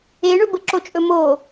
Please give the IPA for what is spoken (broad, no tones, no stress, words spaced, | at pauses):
eɳɵbə ǁot͡ʃʼɵmo